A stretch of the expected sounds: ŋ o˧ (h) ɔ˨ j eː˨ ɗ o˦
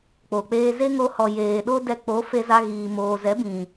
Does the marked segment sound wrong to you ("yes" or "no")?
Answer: no